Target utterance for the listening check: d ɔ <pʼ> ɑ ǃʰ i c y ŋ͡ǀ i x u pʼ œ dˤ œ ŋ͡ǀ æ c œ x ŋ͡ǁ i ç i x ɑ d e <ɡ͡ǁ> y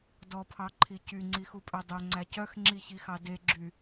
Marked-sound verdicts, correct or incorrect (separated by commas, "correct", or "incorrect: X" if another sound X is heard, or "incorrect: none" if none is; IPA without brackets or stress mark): incorrect: pʰ, correct